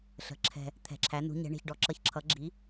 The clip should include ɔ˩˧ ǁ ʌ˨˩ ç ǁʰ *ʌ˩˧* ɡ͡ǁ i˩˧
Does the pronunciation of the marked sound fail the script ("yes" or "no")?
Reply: no